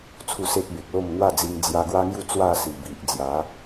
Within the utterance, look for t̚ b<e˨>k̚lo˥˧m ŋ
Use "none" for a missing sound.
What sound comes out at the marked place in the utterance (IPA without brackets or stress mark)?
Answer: e˨